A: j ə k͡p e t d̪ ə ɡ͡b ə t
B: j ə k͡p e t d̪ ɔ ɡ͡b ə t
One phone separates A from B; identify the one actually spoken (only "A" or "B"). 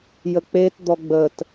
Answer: B